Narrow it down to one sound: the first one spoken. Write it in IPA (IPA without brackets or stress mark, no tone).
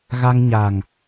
ɣ